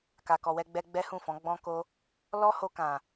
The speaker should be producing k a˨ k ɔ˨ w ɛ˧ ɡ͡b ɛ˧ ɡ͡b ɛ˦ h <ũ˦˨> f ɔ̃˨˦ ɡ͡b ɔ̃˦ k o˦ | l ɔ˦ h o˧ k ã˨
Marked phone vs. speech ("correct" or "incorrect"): correct